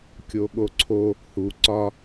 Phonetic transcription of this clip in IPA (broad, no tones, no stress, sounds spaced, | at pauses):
kʲ o ɠ o ǀʰ o | h u ǀ ɒ